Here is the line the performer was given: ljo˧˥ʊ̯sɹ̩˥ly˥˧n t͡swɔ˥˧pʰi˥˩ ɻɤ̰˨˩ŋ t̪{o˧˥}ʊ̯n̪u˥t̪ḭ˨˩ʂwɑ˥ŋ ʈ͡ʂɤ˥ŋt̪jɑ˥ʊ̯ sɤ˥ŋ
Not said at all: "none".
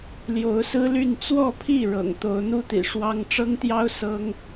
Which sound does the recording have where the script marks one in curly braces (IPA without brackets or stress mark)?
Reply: o˧˥